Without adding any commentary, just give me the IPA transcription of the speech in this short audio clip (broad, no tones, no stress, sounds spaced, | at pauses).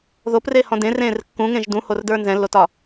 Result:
ð o p r e h ɔ̃ d ẽ r ẽː r kː ũ ŋ ẽ ʒ d ũ h o r d ə˞ n z ɛ̃ lː o t ɒ